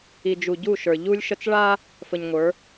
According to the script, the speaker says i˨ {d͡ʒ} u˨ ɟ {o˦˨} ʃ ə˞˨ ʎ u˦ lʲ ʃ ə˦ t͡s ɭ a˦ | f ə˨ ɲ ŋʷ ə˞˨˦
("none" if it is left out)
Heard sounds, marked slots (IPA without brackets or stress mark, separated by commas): d͡ʒ, u˦˨